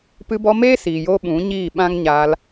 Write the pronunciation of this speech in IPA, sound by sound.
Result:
p ɨ˧ b ɔ˧ m eː˦ s iː˨ j oː˧ ɓ ũ˨˦ ɲ iː˦˨ ɓ ã˦ ŋ ɲ aː˧ l

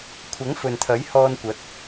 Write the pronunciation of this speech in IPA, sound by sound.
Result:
kʷʰ ɐ˨˥ ŋ f ɵ˨ n t̪ʰ ɐ˨˥ j h ɔː˧ n kʷ ɐ˨˥ t̚

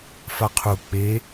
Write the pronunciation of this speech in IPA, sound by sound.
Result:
f a qʰ u k͡p e

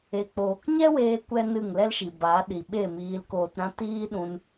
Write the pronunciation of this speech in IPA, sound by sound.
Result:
e˧ k͡p oː˧ k ɲ ɛ˦ w eː˧ kʷ ɛ˦ n ɨ˦˨ ŋ l ɛ˦ l ʃ i˨ b a˨˦ ɗ i˨ ɓ e˦˨ m iː˧ l k oː˧ t ɾ ã˦ t iː˦ ɗ ũ˧ n

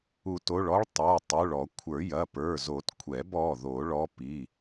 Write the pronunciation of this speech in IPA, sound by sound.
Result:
u˨˩˦ t o˩˧˩ ɭ ɔ˧˥ ɭ tˤ ə˞˩˧˩ tˤ u˩˧˩ ɭ ɔ˨˩˦ kʷʰ ə˞˨˩˦ j ɐ˩˧˩ p ə˞˩˧˩ z o˨˩˦ t kʷʰ ɛ˨˩˦ b ɔ˩˧˩ ð o˨˩˦ ɭ ɔ˧˥ p i˩˧˩

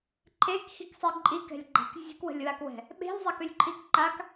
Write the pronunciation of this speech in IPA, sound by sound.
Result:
ǃʰ e k x i k sˤ i ǃʼ i k ɛ̤ lʲ ɡ͡ǃ a̤ k zʲ e̤ k w ə̤ lʲ w a k w ɛ̤ | ɓ e̤ lʲ zˤ ɛ k ø lʲ ǃʰ i k ǃ a k

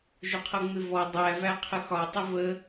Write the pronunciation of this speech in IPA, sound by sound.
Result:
ʒ ʊ qʰ ʌ ŋ͡m ɪ v ɔ dˤ æ v æ qʰ ə x ɒ tˤ ʊ v ə

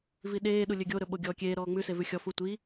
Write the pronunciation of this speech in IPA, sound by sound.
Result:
v i ɗ eː ɗ u lʲ ø ɡʲ o ɾ ɵ ɓ o ɡʲ ɔː kʲ eː ɾ ɔː ŋ͡m ʉ s e v ʉ xʲ ɔ f u tʷ i

